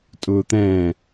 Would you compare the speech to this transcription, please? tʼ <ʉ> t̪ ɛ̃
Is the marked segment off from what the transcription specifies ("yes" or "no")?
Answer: yes